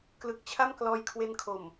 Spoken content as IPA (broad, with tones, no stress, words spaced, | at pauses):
klɯ˨˩k̚t͡ɕʰa˥˩m klɔː˧jkʰwe˧nkʰo˨˩m